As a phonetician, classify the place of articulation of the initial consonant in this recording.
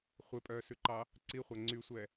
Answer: uvular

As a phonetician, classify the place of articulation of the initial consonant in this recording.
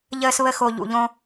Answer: palatal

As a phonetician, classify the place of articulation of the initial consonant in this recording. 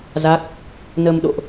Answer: alveolar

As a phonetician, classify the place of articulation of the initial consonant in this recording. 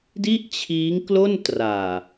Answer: alveolar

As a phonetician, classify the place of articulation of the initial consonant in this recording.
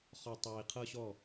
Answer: uvular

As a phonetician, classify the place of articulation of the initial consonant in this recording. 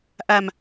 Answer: glottal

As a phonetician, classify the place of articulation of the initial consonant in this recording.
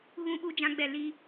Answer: velar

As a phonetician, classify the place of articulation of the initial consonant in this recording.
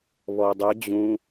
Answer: labial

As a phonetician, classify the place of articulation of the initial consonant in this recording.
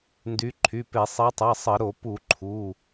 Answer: alveolar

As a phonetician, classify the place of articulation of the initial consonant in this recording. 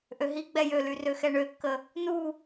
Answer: glottal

